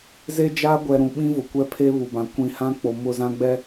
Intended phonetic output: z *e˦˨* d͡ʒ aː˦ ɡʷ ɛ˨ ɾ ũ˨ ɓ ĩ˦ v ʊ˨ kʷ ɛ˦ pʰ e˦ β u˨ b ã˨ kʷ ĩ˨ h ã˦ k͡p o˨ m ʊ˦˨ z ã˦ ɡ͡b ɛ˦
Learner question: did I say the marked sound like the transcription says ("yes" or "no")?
no